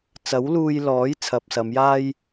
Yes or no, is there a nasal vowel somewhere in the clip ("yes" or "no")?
no